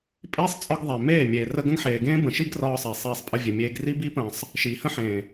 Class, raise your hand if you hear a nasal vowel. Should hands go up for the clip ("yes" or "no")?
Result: yes